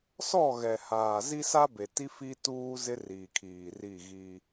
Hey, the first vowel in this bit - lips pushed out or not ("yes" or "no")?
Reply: yes